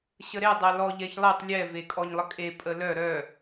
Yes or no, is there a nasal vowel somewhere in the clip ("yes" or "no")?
no